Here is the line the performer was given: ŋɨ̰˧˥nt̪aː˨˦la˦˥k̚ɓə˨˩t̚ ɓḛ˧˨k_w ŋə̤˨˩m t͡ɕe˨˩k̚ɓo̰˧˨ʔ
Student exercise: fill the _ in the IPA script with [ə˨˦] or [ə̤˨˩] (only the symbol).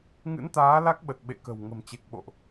ə̤˨˩